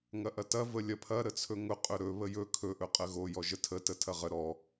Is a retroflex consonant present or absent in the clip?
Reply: absent